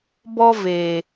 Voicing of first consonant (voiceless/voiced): voiced